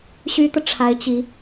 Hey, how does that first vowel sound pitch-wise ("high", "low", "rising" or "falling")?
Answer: high